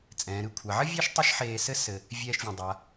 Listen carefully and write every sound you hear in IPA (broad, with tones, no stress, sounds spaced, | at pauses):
t͡sʼ ɛ̃ː˩ ɾ ɨ˨ kʷʰ a˩ ʕ ɘ˥ vʲ e˥ ʃ tˤ i˦ ʃ ħ eː˨ s ɘ˥ s ɘ˨ | vʲ ɛː˨ ʃ vʲ ẽ˩ dˤ a˩